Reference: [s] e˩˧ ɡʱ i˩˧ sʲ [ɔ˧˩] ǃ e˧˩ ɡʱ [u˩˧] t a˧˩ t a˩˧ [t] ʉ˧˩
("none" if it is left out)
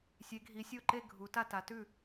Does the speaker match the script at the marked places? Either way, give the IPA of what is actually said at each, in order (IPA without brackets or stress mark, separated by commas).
sʲ, o˧˩, u˩˧, t